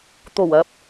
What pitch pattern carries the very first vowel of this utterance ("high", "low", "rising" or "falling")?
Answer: low